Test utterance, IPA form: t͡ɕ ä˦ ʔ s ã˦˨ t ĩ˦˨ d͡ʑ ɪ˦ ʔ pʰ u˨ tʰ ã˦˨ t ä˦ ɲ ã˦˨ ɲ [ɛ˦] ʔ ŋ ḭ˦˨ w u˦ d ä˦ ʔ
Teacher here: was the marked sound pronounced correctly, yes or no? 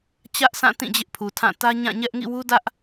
yes